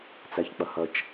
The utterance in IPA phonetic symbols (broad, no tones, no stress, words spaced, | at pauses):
t͡sæçk͡pɐhɐt͡ʃ